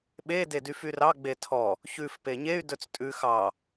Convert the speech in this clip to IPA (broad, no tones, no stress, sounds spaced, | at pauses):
ɓ e d e d y f y r ɑ ɡ͡b e tʰ ɔ | ç ʉ f p e ɲ e y̯ d ɵ t͡s tʼ ʉ x ɑ